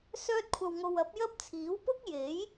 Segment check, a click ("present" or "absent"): absent